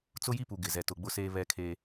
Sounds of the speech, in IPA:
t͡sʊ˦ji˦pu˨ ɡɪ˨zɛ˨ tʊ˨ ɡ͡bʊ˦seː˦ βɛ˦kʰeː˦

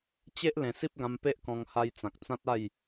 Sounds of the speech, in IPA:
t͡ɕe˦ʔ lẽ˨˩si˦p̚ ɡã˧mpe˦ʔkɔ̃˧ŋ ha˧jt͡sã˨k̚t͡sã˦t̚a˥˧j

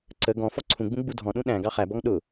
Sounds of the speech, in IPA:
ǀə ɡɔ̃ fɔǀʰũɡ͡bũ ɡ͡budʱɔ̃ɗũ ɗæ̃ ɡɑχæbɔŋ ɗʊ

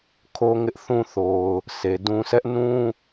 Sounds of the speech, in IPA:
kʰo˦ŋɪ˦ʔθũ˦ θo˨ʊ̯ | sʰe˨dũ˦ sɛ˦ʔnũ˦

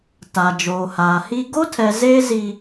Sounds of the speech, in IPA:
ta˨ d͡ʒoː˨haː˨hi˦ ɡo˦tʰɛ˨ zeː˦zi˨

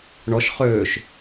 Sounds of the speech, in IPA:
ɳɔʃ χøːʃ

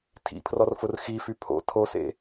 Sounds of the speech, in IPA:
tʰḭpʰrɔrfʊr xify pʰo̰ tʰosḛ

